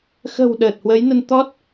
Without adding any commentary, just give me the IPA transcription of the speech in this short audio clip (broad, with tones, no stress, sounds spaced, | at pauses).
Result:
x ə̤˨˩ w ɗ əː˨˩ t̚ h w ə˨˦ j n ə˧ n t̪ ɔ˦˥ t̚